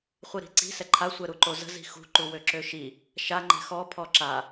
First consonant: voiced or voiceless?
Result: voiceless